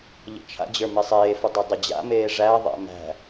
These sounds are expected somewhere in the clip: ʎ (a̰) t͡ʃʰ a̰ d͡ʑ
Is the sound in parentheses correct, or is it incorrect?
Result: incorrect